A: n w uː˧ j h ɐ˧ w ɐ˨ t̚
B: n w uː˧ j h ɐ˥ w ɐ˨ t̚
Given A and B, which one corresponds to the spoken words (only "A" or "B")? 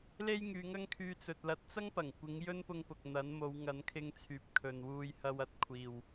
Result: A